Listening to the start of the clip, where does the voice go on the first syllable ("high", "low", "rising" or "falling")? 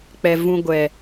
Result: low